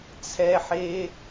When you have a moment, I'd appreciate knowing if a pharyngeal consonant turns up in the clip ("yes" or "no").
yes